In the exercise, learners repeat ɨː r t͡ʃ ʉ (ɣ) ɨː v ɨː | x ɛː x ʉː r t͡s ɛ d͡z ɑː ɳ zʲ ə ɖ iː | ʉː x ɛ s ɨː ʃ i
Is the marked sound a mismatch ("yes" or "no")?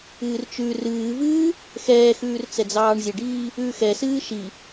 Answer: yes